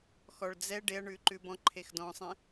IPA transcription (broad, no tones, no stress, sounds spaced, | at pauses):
x ɔ ɭ d͡z ɛ ɖ e ɐ̯ ɳ ʉ ǃ ʉ b ɔ̃ ǃʰ e x d ɔ̃ sˤ ẽ